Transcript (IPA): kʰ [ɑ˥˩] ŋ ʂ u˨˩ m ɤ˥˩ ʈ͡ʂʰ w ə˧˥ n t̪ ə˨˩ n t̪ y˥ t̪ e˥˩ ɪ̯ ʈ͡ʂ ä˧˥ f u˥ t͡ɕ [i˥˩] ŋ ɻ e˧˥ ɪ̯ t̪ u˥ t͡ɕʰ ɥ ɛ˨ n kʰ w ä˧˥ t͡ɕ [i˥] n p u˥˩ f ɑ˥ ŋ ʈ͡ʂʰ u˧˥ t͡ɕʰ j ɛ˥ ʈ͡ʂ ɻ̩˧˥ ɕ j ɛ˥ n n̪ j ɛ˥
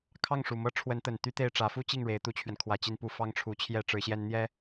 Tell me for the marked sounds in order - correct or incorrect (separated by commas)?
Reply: correct, correct, incorrect